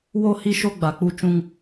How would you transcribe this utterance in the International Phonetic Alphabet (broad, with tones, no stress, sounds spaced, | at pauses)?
w o˦ h i˦ ʃ o˦ ɡ͡b a˨ k͡p u˦ t͡ʃ ũ˦ ŋ